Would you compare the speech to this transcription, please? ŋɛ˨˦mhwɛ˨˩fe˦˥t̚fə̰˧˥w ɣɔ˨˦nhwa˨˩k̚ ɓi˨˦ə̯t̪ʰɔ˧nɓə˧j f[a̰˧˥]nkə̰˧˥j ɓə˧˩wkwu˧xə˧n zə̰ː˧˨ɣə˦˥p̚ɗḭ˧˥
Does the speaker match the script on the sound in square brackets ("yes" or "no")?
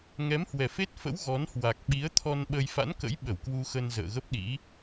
yes